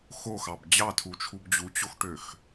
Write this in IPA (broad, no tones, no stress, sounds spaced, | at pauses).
x o x ɑ b d͡ʑ ɑ tʰ u t͡ʃʰ u b d͡ʑ u t͡ɕ o x ʈ ø x